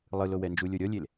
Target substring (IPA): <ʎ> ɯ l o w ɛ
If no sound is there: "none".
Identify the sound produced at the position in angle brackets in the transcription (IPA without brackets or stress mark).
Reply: lˠ